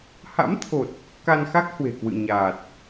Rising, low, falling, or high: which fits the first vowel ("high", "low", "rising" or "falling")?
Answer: rising